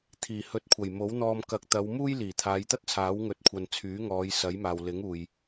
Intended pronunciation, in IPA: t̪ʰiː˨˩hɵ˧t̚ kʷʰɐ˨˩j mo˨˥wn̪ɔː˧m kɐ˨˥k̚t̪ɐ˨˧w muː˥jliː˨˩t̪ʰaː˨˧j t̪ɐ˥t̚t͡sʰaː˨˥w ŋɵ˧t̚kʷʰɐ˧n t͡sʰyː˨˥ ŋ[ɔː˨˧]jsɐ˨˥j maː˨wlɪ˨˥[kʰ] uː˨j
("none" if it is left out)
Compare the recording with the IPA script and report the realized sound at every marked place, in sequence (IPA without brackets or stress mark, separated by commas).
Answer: ɔː˨˧, ŋ